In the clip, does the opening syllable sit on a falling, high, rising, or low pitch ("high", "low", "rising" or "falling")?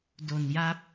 low